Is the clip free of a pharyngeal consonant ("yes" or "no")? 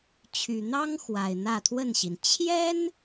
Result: yes